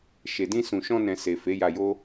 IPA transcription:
ʃe˨dĩ˧ sũ˨ʃɔ̃˧nɛ̃˨ se˨ fe˨˦ja˧jo˦

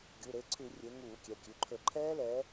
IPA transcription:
ɡʲu˩˧˩ɾe˩˧˩ǀʰʉ˧˩˧ rʲe˨˦ ŋuː˧˩˧kʲɛ˩˧˩kʲʉ˩˧˩ǃʰɵ˧˩˧ ǃʰɛː˦˥lɛː˨˦

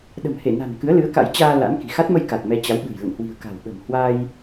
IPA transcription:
ɗə̤˨˩mhe˧˩na̤˨˩n kɨ˨˦ə̯lɨ˨˦ə̯ka̰˧˥jt͡ɕaː˧ la̰˧˥nki̤˨˩ xa˦˥t̚mə˧jka˨˩t̚ mɛ˧t͡ɕa˨˦wɓɨ̤˨˩j lə̰˧˨nhwi̤˨˩ə̯ ka̤˨˩wɓə̤˨˩m hwa˧j

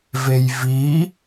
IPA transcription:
vejvi

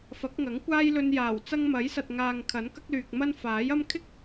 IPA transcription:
fɐ˨˥k̚ŋɐ˨˥ŋ kʷaː˥jlɵ˧njaː˨˩w t͡sɐ˥ŋ mɐ˨˥jsɐ˨t̚ŋaː˨ŋ kʰɐ˨˥nkɐ˥k̚lyː˨k̚mɐ˥n faː˨˥jɐ˥m kʰɪ˥k̚

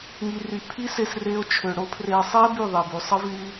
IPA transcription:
ŋi˨ry˨ pʰi˦se˧s re˧o̯t͡ʃʰø˨ɽo˦pʰre˧ sˤi˦e̯ by˦˨ðˤe˨by˨sˤə˦ vy˧

